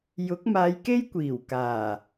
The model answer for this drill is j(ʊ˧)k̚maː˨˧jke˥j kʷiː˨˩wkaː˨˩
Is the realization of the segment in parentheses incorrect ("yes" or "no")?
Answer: yes